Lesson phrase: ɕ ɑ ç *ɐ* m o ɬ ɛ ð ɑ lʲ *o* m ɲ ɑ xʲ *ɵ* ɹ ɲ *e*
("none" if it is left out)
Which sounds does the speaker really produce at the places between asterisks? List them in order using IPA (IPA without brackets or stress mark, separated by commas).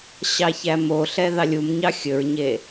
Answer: æ, u, ɵ, e